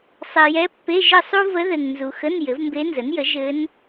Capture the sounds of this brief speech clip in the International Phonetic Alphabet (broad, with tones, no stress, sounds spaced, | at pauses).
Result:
sˤ ɛ˨ j ɛ˧˥ pː e˧˥˧ ʒ ɘ˥˧ sˤ u˥ v ə˧˥ ð ɘ˨ ŋ n z u˨ x ə˧˥˧ n j ɘ˩˥ v m b e˧˥ n z ə˩˥ n j ə˩˥ ʒ ɘ˧˥ n